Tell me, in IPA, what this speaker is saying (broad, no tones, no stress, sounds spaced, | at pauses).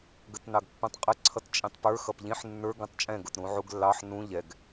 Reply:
ɡ ə t n ɑ ɡ pː ũ tˤ qʼ ə ǀʰ ʌ t t͡ʃʼ ĩ tˤ p ə˞ x ʌ p ʎ ĩ ħ nː ə˞ ɡ ũ tˤ t͡ʃʼ ɛ̃ ɡ ʊ t ɾ ũ ʕ u ɡ lː ɑ ħ n ũ ʎ ɛ ɡ